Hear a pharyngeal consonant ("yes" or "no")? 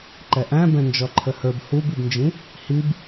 no